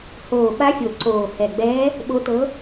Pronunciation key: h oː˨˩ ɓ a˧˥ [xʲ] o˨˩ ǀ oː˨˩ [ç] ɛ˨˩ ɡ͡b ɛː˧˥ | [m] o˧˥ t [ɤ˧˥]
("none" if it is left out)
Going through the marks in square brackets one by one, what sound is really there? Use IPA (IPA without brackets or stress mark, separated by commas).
xʲ, h, ɓ, ɤ˧˥